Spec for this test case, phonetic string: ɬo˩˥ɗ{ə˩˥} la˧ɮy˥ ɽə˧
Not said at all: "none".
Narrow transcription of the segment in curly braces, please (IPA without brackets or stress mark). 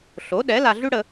ɛ˩˥